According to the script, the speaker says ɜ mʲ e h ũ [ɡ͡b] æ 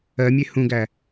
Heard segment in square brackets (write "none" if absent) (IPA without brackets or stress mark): ɡ